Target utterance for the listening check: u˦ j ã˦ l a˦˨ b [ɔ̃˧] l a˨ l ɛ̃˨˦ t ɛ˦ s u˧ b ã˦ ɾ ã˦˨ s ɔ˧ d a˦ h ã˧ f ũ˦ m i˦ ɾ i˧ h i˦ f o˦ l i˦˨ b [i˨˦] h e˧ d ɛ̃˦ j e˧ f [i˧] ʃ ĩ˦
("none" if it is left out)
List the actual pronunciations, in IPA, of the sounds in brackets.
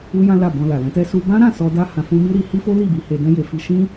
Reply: ɔ̃˧, i˨˦, i˧

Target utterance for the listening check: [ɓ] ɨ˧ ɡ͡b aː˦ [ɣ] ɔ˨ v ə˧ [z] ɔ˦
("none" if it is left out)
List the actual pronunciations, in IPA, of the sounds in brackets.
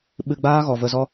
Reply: ɓ, ɣ, z

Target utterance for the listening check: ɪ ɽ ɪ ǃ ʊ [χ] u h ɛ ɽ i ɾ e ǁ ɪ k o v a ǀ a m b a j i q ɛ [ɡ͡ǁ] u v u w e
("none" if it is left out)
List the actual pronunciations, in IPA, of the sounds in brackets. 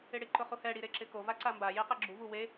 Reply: χ, ɡ͡ǁ

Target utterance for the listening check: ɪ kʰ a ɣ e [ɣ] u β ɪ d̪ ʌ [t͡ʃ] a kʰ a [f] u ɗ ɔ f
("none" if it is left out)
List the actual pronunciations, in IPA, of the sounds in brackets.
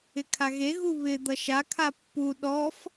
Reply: ɣ, ʃ, pː

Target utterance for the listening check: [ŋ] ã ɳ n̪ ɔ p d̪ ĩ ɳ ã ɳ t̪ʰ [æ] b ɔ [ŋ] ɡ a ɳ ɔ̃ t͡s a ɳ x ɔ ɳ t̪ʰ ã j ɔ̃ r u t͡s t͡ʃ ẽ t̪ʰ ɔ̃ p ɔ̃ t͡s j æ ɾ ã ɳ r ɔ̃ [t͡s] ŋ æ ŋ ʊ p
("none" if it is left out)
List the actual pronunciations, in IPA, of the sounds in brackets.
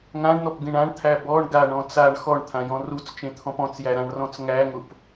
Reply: ŋ, æ, ɳ, t͡s

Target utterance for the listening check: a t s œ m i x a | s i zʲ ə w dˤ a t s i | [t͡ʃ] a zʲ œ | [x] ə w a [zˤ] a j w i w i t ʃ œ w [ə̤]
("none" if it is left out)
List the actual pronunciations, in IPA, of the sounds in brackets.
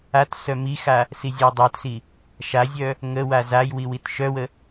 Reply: ʃ, ŋ, z, ə

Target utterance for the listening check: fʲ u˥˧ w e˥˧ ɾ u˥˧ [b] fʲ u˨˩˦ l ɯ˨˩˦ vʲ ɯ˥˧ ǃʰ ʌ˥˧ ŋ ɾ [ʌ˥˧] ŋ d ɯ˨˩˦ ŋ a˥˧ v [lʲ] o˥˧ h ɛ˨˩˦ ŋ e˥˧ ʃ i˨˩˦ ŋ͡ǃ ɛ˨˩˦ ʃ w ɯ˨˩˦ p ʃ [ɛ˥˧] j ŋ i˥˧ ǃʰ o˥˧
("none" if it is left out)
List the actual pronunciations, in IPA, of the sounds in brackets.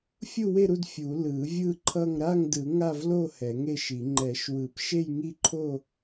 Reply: d, a˥˧, l, e˥˧

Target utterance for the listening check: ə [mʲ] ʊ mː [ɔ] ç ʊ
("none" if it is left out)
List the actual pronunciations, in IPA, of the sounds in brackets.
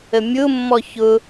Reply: mʲ, ɔ

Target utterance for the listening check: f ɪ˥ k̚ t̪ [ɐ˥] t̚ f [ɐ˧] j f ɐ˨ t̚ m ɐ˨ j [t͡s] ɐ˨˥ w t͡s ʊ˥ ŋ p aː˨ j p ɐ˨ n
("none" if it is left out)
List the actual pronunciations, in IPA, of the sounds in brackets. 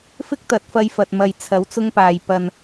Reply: ɐ˨˥, ɐ˧, t͡sʰ

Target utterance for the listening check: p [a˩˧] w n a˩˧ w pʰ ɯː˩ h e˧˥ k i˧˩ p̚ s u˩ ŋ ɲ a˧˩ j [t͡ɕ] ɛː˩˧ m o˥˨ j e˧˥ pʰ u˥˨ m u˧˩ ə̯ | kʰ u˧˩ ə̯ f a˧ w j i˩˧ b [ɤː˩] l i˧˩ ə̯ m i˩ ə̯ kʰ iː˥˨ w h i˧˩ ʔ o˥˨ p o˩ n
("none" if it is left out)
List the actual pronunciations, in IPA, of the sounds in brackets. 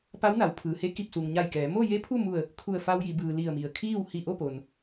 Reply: a˧˥, k, ɯː˩

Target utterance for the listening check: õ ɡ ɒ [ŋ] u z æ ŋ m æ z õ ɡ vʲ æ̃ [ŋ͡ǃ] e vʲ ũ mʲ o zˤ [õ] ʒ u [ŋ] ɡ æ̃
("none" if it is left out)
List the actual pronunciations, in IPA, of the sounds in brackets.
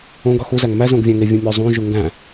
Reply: x, ŋ, ũ, ŋ

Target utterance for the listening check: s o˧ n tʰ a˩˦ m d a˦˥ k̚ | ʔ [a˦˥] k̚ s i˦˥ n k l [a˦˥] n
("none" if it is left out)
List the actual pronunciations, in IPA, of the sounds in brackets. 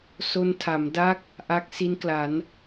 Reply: a˦˥, a˩˦

